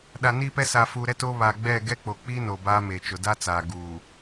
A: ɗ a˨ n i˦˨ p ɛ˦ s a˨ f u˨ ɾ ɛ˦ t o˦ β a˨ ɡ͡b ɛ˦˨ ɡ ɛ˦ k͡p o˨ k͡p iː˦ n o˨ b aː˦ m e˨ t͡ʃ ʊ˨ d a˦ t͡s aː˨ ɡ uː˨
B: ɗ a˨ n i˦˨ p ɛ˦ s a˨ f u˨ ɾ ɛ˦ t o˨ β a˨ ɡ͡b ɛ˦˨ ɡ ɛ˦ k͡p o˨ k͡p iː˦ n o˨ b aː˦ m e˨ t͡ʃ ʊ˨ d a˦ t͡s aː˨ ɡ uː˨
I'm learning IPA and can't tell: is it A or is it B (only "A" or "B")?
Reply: A